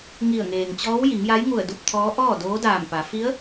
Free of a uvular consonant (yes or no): yes